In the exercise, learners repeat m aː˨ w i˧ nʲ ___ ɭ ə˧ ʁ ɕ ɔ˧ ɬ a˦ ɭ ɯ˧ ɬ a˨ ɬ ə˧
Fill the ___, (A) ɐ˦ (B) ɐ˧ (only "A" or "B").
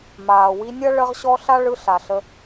A